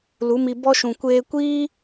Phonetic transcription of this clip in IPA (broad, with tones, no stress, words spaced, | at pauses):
lu˨˦mi˧ bɔ˦ʃũ˨ kʷeː˧kʷiː˦